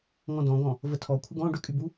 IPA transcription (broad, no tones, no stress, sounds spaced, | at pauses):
ŋ ɔ̃ d ɔ̃ ɡ ɔ̃ | v ə tʰ ɔ kʷʰ ɪ ɡ ɔ̃ ɖ ʏ kʼ y b u